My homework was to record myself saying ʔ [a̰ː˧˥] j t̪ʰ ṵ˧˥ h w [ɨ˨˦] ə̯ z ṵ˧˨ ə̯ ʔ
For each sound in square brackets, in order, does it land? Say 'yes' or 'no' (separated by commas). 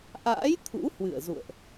yes, no